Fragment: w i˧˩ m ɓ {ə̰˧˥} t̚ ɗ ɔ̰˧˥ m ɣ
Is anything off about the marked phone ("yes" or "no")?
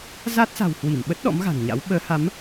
yes